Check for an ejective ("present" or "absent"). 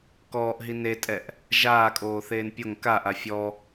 present